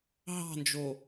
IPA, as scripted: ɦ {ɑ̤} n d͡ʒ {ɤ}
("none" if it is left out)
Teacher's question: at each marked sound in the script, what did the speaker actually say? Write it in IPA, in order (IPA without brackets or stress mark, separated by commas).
ɑ̤, o